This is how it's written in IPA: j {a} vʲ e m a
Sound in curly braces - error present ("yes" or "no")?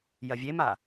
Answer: yes